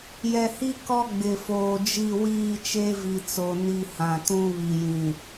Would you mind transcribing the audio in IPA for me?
j ɛ˨ h i˦ k ɔ˦ ɡ͡b ɪ˨ f oː˨ d͡ʒ i˦˨ w iː˦˨ t͡ʃ e˦ v i˨ t͡s o˨ n i˦˨ h ã˨ t ũ˦ β i˨ j ĩ˨

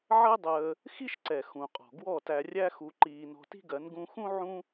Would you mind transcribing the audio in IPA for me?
ʕ ɜ˦ dˤ əː˧ | x i˦ ʃ ǀ ɛ˨ x ũ˨ qʼ ɔ̤˨ ɡ w ɔ˦˨ t æ˧ rʲ æ˦ x u˧ ǃ iː˧ n ɔ̤˧ t i̤˦ ɡ ɜ˨˦ n ɡ ũ˧ x ũ˦ ʕ ũ˦

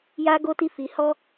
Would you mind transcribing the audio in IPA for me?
j a˧ ɡ o˧ t i˧ f i˧ h ɔ˦

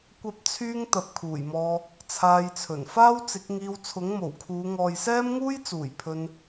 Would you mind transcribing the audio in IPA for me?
kʷ ɐ˥ p̚ t͡sʰ yː˥ ŋ t̪ ɐ˨˥ p̚ kʰ uː˨˩ j m ɔː˧ | t͡sʰ aː˧ j t͡sʰ ɵ˨˩ n f aː˥ w t͡s ɪ˨˥ k̚ ŋ iː˧ w t͡sʰ ʊ˨˥ ŋ m o˨˩ w kʰ uː˨˧ ŋ ɔː˨ j s ɛː˥ m ŋ uː˥ j t͡s uː˨˩ j pʰ ɵ˧ n

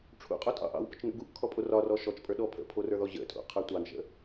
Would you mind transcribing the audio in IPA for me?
ʈ͡ʂʰ ṵ qʼ o tʼ ɑ̰ ʔ ɑ̰ w p ə t͡ʃ n ṵ ɡ u ʔ kʰ ɔ pʼ o r ɒ r ɔ ʃ ɔ t͡ʃ pʼ ə˞ ɗ ɔ pʰ ə̰ pʰ o r ə˞ ð ɔ ʑ ə̰ tʼ ṵ qʰ ə˞ tʷ ɑ n ʃ ə̰

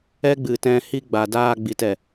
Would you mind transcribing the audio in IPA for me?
ɛ˦ ɡ͡b ɨ˨ t ɛ̃˧ h i˧ ɡ͡b a˨ d aː˧ ɡ͡b i˨ t ɛ˨

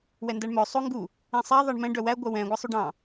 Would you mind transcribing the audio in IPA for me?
w ɛ n d æ ɳ m œ sˤ o ŋ ɡ u | ẽ sˤ æ ðˤ ɑ ɳ m ɛ̃ ɖ œ w æ ɡʷ œ w ɛ̃ ɡʷ æ sˤ y ɖ ɑ̃

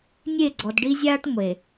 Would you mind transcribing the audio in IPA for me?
nʲ e˦˨ ɡ͡ǀ ɔ˨ d ɖ i˦ zʲ aː˦ ʈ ŋʷ e˨

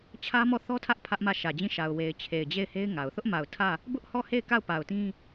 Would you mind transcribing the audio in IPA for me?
t͡ɕʰ ä˦ m ɔ˦˨ θ ɔ˦ tʰ ä˦ ʔ pʰ ä˦ ʔ m ä˦˨ ʃ ä˨ d͡ʑ ĩ˦˨ ʃ a˨ ʊ̯ w e˨ ɪ̯ t͡ɕʰ e˨ ɪ̯ d͡ʑ e˦˨ ɪ̯ h e˦ ɪ̯ ŋ a˨ ʊ̯ θ ʊ˦ ʔ m a˨ ʊ̯ tʰ ä˦˨ | b ʊ˦ ʔ h ɔ˦˨ h e˦˨ ɪ̯ k a˦˨ ʊ̯ p a˨ ʊ̯ t ĩ˦

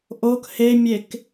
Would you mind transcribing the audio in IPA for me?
ʔ o k h e mʲ e k

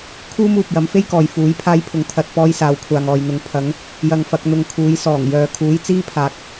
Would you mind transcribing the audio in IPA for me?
kʰ uː˥ m uː˨ p̚ j ɐ˨˥ m f e˥ j k ɔː˨ j f uː˨˥ j pʰ aː˥ j pʰ ʊ˧ ŋ t̪ʰ ɐ˧ t̚ p ɔː˧ j s aː˨˧ w kʷʰ aː˨ ŋ ɔː˨ j n̪ ʊ˨˧ ŋ pʰ ɐ˨˧ ŋ | j ɐ˧ ŋ f ɐ˨˥ k̚ n̪ ʊ˧ ŋ kʰ uː˨˥ j s ɔː˨˩ ŋ j œː˨ kʰ uː˨˥ j t͡s iː˥ pʰ aː˨ k̚

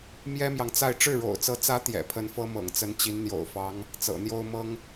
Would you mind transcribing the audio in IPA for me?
m j ɛ˥ m j ɑ˨ ŋ t͡s a˥˧ ɪ̯ ʈ͡ʂ ɻ̩˥˩ ɻ o̰˨˩ ʊ̯ t͡s ɤ˧˥ t͡s ä˧˥ t̪ j ɛ̰˨˩ pʰ ə˧˥ n f ɤ˥ m ɤ̰˨˩ ŋ t͡s ə˧˥ n t͡ɕ i˧˥ n n̪ j o̰˨˩ ʊ̯ f ɑ˧˥ ŋ | t͡s ɤ̰˨˩ n̪ j o˥ ʊ̯ m ɤ˥ ŋ

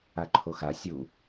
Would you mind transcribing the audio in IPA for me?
a ǃʰ o x a sʲ u

